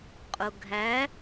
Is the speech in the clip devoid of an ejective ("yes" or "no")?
no